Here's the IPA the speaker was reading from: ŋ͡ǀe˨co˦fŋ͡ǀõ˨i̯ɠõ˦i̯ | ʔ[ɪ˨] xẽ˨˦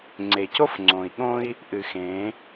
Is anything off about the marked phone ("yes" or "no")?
yes